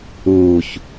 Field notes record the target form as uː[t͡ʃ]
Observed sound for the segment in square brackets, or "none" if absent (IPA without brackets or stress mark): ç